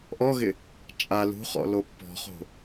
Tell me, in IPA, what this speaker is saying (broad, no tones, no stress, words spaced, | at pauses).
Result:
ʔɔɣɪ | t͡ʃʼa lṳχɔ̰lo pːɔ̤χo̤